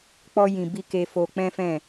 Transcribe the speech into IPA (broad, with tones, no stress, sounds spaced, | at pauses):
k͡p ɔ˧ j ĩ˨ b i˧ k e˧ f o˧ k͡p ɛ̃˦ f ɛ̃˦˨